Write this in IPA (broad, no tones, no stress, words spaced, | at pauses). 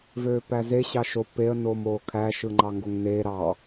vøːpæze ɕɑʃo peə̯ noːmoːkʰæ ʃɯŋ͡ǃɑŋɡoŋneː ɾɑ